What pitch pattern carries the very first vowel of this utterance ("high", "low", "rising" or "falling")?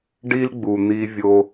high